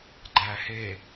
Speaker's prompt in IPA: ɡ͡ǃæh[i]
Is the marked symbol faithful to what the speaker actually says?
no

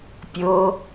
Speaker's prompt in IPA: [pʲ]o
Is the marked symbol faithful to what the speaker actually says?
yes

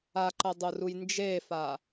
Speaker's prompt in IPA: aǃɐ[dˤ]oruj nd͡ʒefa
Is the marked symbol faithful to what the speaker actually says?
yes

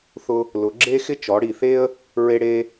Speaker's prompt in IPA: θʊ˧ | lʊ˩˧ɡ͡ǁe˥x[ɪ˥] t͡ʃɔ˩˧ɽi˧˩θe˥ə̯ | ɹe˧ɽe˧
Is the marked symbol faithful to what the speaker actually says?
yes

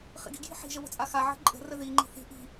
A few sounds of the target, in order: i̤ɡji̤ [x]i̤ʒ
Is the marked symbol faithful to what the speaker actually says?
no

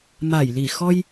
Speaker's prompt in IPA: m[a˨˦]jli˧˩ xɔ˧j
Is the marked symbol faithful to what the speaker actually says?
no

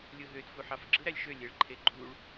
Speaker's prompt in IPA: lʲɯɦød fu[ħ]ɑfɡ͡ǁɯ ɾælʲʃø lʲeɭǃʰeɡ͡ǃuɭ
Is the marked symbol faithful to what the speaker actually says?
yes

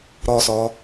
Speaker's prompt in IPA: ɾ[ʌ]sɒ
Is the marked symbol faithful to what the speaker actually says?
no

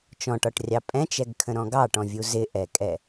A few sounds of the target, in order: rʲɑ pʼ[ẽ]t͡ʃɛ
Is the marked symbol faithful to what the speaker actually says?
no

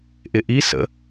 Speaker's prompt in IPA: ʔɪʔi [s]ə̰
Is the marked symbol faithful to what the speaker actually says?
yes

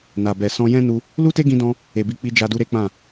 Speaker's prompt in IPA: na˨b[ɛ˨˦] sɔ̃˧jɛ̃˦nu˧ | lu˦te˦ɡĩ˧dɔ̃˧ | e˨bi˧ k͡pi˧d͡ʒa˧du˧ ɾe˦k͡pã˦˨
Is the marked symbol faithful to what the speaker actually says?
no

